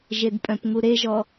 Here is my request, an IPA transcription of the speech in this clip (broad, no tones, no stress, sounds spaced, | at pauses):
ʒ e d pʼ œ̃ p ŋ u ɾ e ʒ ɔ